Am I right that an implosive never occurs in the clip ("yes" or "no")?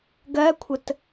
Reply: yes